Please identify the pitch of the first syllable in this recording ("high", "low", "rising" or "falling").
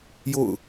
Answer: falling